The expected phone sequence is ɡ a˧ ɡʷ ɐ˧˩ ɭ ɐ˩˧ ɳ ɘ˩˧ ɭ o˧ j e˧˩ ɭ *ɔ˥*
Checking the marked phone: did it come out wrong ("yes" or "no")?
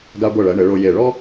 no